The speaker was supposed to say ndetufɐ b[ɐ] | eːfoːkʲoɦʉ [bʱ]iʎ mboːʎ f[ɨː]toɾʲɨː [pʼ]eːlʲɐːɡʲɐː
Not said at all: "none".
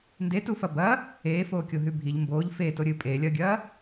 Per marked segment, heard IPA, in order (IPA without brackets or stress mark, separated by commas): ɐ, bʱ, eː, pʼ